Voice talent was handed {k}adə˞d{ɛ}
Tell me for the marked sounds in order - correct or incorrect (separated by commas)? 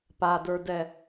incorrect, correct